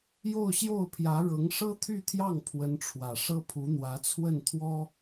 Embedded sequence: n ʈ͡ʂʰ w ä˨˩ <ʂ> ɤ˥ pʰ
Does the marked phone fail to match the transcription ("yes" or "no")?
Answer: no